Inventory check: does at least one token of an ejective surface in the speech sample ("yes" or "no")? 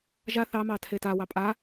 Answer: yes